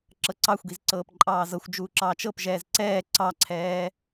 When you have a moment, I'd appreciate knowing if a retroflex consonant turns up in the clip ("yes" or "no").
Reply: no